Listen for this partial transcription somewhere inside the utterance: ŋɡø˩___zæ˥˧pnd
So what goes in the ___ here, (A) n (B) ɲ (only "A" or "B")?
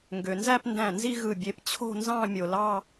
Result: A